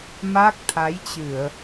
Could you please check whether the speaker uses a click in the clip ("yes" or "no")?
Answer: no